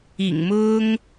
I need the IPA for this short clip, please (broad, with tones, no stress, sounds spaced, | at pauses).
ḭ˨˩ ŋ m ʊ˦ ŋ